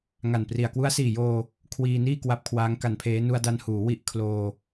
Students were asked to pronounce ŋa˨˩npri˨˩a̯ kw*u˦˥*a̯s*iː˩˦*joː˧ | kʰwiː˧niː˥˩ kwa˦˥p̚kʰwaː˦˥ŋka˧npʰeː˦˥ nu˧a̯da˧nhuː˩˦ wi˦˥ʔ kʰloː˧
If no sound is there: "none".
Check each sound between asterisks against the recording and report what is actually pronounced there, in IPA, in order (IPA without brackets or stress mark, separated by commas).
u˦˥, iː˨˩